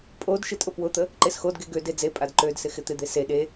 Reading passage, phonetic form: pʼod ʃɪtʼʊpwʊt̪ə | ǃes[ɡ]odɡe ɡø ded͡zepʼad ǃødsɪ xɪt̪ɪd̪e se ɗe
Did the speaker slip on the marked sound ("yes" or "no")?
yes